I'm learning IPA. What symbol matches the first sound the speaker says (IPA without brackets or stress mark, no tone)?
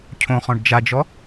cʰ